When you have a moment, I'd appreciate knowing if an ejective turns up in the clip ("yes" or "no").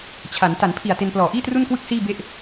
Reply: no